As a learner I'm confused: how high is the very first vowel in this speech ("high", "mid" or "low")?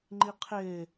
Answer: high